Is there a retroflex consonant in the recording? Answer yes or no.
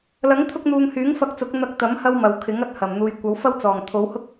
no